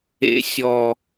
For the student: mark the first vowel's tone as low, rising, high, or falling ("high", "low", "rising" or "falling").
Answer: low